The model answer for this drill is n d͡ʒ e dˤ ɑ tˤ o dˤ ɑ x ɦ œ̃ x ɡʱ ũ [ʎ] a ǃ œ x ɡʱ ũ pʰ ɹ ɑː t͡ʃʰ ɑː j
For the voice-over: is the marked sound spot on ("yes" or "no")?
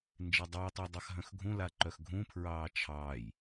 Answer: no